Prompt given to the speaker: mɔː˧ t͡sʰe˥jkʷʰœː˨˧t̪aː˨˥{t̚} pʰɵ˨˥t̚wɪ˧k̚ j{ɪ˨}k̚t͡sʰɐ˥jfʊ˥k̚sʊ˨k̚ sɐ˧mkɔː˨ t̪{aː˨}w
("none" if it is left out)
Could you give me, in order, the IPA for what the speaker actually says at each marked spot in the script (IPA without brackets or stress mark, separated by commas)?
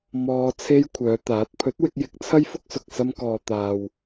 t̚, ɪ˨˥, aː˨